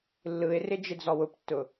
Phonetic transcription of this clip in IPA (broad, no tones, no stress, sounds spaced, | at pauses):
lː ɯ ɪ̯ r ɪ d͡ʒ ɪ d͡z ɔ w ʊ p tː ʊ